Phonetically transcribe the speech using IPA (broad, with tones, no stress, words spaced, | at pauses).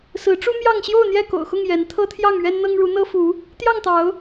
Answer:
sɹ̩˨˦ʈ͡ʂu˦ mjɑ˥˨ŋ ɕjo˥˨ʊ̯n̪jɛ˥˨ko̰˨˩ʊ̯xʊ˥˨ŋ jɛ˨˦n t̪ʰɤ˦t̪ʰjɑ˥˨ŋɥɛ˦nn̪ɤ˦ŋ ɻu˨˦n̪ɤ˦fu˨˦ | t̪jɑ˥˨ŋt̪ɑ˨˦ʊ̯